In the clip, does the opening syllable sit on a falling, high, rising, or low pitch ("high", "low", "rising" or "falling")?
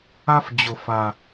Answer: high